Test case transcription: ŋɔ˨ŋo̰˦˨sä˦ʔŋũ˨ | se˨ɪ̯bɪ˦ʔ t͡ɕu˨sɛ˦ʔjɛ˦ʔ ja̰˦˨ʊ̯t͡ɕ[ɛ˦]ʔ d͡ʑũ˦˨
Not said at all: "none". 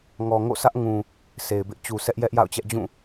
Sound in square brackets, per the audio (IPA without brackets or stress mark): ɛ˦